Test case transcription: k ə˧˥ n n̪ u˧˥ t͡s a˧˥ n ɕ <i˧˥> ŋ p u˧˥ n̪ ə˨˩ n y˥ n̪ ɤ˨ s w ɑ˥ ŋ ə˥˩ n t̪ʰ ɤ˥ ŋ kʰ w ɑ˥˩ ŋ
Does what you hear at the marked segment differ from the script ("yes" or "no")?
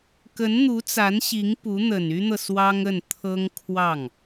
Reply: no